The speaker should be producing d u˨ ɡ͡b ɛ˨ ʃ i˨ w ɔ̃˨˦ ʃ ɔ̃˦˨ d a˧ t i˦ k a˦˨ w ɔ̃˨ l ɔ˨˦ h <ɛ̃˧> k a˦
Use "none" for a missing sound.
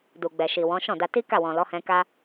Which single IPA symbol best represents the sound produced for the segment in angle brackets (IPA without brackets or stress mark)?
ɛ̃˧